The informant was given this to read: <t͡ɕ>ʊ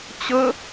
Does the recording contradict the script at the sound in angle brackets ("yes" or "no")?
no